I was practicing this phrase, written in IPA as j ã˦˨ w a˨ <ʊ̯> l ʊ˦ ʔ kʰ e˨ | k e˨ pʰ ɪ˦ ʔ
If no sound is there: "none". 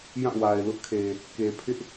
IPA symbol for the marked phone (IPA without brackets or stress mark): ɪ̯